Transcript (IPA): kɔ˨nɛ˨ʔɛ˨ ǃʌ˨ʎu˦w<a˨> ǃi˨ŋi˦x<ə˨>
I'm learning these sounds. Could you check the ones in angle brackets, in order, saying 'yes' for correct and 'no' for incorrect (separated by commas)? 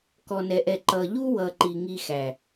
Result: no, no